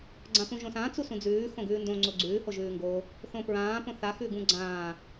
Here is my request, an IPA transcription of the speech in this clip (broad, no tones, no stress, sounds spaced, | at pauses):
ɡ͡ǀ ã p ũ ʒ õ s ã t͡s u s ũ d͡z ʉː x õ ɡ ʉː n d õ ŋ͡ǀ o ɡ͡ǀ ʉː h o ʒ ʉː ŋ ɡ o | θ õ p ɹ ãː p õ θ a x ʉ ɡ ũ ɡ͡ǀ ãː